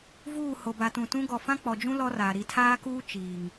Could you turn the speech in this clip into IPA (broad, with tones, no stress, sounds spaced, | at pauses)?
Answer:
v uː˦˨ h o˨ b a˨ t ũ˨ t ũ˦ ɡ ɔ˨ f ã˦ k͡p ɔ˨ d͡ʒ ũ˦ l ɔ˦ r a˨ ɾ i˨ tʰ aː˦ k uː˦ t͡ʃ iː˨ ŋ